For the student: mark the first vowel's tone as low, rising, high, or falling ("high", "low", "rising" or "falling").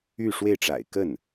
falling